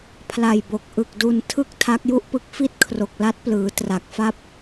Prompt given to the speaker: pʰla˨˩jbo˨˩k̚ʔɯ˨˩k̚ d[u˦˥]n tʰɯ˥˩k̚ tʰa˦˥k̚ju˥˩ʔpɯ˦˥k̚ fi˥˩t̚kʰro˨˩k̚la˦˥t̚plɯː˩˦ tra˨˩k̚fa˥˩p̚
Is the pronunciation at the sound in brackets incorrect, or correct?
incorrect